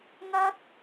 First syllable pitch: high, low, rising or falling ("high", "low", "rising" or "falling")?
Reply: high